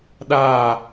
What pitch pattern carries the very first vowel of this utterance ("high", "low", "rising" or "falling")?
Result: falling